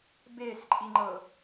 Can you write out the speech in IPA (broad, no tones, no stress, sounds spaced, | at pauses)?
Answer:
b e s ǃʼ i ŋ͡ǃ ɤ